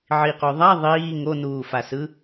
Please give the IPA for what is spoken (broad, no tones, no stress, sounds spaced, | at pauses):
ʕ i q o ðˤ a ðˤ iː ŋ o n uː f a s ɯ